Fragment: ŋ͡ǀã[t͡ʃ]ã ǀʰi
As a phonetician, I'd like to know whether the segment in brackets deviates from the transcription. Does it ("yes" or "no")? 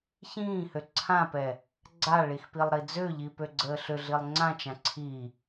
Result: no